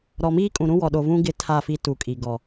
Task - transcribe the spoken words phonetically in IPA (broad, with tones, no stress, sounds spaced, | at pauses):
ɾ ɔ˨ m iː˦ kʼ ũ˨ ɾ ũ˦ w ɔ˨ ɗ o˨ v ũ˦ ɡ ɪ˦ tʰ a˦˨ f i˦ t u˨ kʼ i˨ ɡ ɔ˨